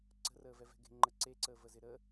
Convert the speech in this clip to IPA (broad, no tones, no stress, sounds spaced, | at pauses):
ǀ ə̤ r əː v ɛ v ɛ̤ ɡ e̤ ŋ͡ǃ ə ǀ e ǀ əː v ə z ɪ ɾ ə